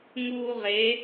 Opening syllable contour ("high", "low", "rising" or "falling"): high